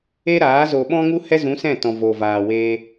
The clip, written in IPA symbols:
e˦ ɾ aː˨˦ z o˨ ɓ ɔ̃˧ ŋ u˧ h ɛ˦ z ũ˨˦ s ɛ̃˦˨ t ɔ̃˨ v o˨ v aː˨ w eː˧

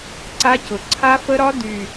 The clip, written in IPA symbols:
ǀ a˦˥ c ʊ˨˩ ǀʰ a˦˥ f ə˦˥ ɾ ɒ˦˥ d y˨˩

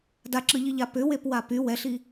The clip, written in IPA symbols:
d a ǁ ɯ ʎ i ʎ a p ʏ w e p w a p y w ɛ ɬ i

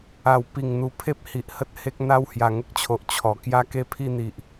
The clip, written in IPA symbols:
a˨˩ w p i˨˩ ŋ n̪ u˨˩ pʰ e˦ p̚ h i˨ ʔ h ə˦ t̚ h e˦ k̚ n̪ a˥˧ w h j a˨˩ ŋ ə˦ k̚ t͡ɕʰ o˨ ʔ t͡ɕʰ ɔ˨˩ k j a˦ k e˦ pʰ i˥˧ n̪ i˨ ʔ

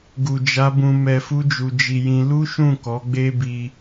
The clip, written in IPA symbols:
ɡ u˨ d͡ʒ a˨˦ b ũ˧ m ɛ˧ f u˦ d͡ʒ u˧ d͡ʒ i˧ j ĩ˧ l u˦ ʃ ũ˦˨ k ɔ˨˦ ɡ͡b e˦ b i˦

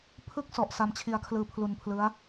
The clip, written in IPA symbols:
pʰ ɯ˥˩ k̚ s ɔ˨˩ ʔ s a˧ m t͡ɕʰ i˧ a̯ kʰ l ɯː˧ pʰ l u˧ n pʰ l ɯ˦˥ a̯

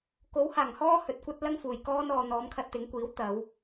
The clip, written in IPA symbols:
k o˨˥ w h aː˨˩ ŋ h ɔː˥ h ɵ˨ t̚ kʷ ɐ˥ t̚ l ɐ˥ ŋ f uː˨˩ j k ɔː˥ n ɔː˧ n̪ ɔː˨˧ m kʰ ɐ˧ t̚ t̪ ɪ˨˧ ŋ kʷ iː˨˥ w t̪ ɐ˨˧ w

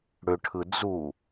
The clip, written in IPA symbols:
ɽ ʏ ʈʰ ɯ d͡z u

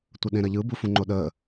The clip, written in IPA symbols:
tʷ ə ɗ ẽ ɾ ɐ ʎ ɯ b u f ũ ŋ͡ǃ o ɗ əː

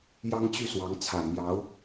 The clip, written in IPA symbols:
j ɑ˥ ŋ t͡ɕ y˥˩ s w ɑ˧˥ ŋ t͡sʰ ä˨˩ m j ɑ˧˥ ʊ̯

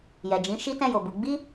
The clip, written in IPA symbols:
j ɛ˨ d͡ʒ ĩ˨˦ ʃ i˦ t ɛ̃˦˨ j o˨ b u˨˦ ɡ͡b i˦

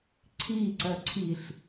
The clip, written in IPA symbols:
ǀʰ i ǀ ɜ ǀʰ i ɬ

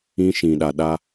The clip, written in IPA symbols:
ĩ˦ ʃ ĩ˨ ɗ a˨ ɗ a˦

